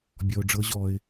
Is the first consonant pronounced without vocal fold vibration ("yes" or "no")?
no